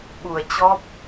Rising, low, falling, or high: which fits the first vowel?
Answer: low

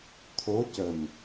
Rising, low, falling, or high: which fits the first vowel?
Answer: rising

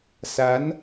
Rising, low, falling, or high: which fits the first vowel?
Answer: rising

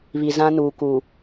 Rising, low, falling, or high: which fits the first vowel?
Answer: low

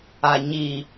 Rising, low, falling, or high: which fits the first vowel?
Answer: low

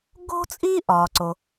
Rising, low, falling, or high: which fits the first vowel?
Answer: high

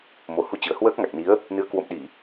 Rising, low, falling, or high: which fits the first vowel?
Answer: low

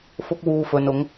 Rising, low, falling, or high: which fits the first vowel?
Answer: high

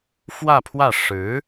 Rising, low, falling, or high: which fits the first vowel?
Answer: falling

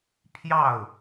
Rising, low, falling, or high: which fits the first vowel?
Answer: falling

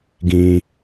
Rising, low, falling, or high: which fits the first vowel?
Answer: low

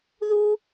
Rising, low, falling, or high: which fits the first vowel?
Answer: high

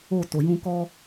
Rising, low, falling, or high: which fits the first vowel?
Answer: falling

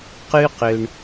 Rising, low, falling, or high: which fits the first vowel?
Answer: high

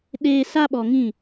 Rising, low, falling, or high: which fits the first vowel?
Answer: high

